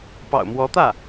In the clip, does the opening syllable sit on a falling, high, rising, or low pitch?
low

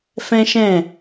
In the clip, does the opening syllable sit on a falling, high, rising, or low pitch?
high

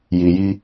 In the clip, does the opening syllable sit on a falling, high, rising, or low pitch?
low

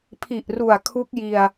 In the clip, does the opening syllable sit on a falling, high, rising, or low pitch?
low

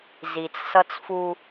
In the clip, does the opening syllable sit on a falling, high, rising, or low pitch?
low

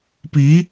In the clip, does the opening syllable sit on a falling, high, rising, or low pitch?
rising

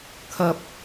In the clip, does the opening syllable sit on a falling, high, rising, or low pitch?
high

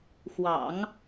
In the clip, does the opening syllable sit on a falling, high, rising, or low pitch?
low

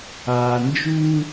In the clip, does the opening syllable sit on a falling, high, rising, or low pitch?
low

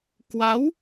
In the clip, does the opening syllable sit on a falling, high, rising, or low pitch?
rising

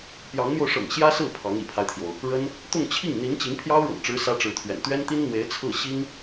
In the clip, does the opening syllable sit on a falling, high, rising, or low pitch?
rising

